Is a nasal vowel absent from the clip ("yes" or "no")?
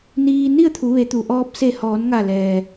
yes